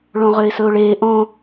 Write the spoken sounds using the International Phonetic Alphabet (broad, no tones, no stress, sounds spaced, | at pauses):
ɭ õ ʁ ø ɪ̯ s ɵ ʊ̯ ɭ eː ʔ õ